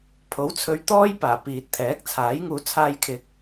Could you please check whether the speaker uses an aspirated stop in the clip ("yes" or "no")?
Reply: yes